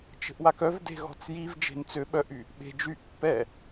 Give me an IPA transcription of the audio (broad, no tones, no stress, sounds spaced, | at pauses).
t͡ʃ ə̤ ʔ w a k œ v d e̤ ɣ ɔ̤ t͡s j i v d͡ʒ e̤ n t͡s ø ɓ œ ʔ y | ɓ e̤ d͡ʒ y ʔ pː ɛ